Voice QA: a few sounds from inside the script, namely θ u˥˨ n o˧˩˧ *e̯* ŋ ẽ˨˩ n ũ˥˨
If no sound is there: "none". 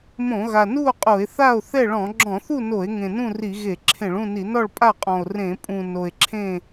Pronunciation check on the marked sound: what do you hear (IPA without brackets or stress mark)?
e̯